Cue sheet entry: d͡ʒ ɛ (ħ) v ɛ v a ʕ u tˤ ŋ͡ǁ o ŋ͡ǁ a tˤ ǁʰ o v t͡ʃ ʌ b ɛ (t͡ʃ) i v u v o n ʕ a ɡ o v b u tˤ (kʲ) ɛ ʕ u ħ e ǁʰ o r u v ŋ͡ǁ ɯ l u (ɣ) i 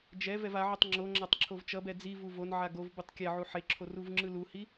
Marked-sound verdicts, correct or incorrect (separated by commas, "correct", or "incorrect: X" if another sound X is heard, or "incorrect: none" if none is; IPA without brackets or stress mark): incorrect: none, incorrect: d͡z, correct, incorrect: h